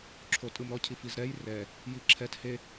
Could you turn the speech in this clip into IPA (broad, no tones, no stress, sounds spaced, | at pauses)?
ǁʰ o tʼ ɯ m ɾ ɔ cʰ i f i z ɾ ɛ j r ɛ | j i ǁʰ ɛ t h e